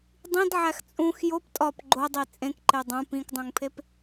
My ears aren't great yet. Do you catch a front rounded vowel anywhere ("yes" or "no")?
no